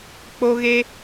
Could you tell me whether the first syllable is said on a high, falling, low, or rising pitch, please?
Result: high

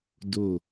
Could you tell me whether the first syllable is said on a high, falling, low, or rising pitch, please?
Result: falling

